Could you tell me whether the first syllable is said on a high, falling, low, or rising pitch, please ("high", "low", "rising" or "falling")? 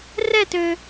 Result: falling